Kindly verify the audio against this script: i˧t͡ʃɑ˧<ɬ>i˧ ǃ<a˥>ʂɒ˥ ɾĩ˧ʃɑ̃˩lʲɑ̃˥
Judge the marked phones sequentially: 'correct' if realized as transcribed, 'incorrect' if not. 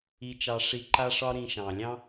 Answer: incorrect, correct

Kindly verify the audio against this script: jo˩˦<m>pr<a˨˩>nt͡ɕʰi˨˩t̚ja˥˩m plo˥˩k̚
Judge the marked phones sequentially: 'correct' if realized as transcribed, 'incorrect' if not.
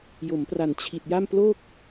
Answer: correct, correct

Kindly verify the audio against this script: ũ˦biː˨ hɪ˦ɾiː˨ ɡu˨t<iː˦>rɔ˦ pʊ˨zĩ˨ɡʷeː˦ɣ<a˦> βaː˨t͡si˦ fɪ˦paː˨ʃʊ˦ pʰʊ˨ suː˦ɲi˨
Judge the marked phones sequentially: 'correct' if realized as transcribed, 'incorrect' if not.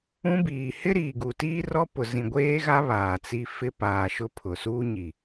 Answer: correct, correct

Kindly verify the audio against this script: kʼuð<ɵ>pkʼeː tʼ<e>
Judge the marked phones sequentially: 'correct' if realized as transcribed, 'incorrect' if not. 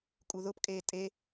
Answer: incorrect, correct

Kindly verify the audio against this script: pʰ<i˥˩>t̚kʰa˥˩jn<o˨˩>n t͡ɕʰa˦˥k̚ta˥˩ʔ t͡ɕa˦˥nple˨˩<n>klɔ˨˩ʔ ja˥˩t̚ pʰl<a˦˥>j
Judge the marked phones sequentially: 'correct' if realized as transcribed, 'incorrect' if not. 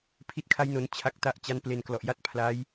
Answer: correct, incorrect, correct, correct

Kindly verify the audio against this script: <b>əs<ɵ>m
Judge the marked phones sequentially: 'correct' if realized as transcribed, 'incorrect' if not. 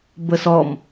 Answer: correct, incorrect

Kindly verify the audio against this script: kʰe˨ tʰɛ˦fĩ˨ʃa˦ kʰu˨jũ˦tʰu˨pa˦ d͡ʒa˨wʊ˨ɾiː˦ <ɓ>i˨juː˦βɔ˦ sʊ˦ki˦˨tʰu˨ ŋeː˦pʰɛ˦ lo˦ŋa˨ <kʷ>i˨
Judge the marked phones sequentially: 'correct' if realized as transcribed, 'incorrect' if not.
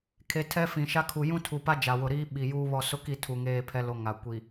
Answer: correct, correct

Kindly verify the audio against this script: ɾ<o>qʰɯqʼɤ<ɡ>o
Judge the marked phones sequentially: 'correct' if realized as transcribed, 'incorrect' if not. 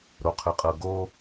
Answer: correct, correct

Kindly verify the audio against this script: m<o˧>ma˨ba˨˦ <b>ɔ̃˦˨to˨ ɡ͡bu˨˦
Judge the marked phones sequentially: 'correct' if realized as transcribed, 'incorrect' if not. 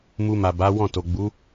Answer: incorrect, incorrect

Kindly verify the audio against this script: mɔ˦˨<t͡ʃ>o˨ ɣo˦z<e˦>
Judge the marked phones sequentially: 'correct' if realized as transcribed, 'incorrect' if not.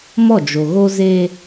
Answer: incorrect, correct

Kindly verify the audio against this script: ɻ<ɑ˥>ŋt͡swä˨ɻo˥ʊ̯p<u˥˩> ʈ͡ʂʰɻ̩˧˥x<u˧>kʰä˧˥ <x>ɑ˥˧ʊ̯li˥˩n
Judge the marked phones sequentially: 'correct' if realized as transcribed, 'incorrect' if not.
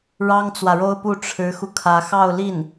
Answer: correct, correct, correct, correct

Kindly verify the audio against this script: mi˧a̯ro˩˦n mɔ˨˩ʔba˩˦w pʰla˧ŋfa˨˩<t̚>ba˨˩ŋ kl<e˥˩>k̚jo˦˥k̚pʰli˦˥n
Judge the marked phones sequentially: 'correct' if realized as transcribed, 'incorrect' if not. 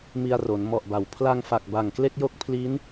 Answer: incorrect, correct

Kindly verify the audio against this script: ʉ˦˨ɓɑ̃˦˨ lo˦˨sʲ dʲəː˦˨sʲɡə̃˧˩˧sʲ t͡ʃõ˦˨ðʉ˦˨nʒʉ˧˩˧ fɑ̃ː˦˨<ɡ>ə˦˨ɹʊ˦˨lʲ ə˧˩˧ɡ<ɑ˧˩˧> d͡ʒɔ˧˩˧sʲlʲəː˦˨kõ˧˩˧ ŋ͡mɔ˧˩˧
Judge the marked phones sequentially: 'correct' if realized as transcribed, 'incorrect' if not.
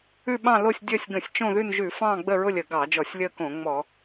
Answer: incorrect, correct

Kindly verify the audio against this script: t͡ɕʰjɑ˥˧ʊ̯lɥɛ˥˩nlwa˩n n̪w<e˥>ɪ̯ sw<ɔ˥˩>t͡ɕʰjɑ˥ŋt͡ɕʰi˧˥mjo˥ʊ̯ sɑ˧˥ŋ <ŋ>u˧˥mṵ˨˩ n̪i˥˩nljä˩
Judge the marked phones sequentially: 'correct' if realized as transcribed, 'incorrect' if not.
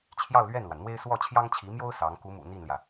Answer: correct, correct, incorrect

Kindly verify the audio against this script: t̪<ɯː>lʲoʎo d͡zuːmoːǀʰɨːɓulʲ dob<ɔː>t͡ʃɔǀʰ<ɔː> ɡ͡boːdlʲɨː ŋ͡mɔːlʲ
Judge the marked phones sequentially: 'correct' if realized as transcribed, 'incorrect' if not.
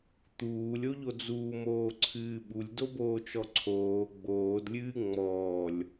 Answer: incorrect, incorrect, incorrect

